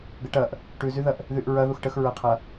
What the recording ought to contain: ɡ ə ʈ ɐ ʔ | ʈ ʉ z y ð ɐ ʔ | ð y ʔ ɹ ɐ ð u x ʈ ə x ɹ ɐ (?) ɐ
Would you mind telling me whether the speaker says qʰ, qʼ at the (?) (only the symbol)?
qʰ